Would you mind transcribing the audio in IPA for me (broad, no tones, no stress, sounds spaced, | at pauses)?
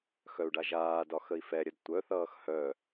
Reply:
x œ u̯ ɖ a ʒ aː d ɒ x ə i̯ f ɛ ɾʲ ə d tʷ œ θ ʌː x h œ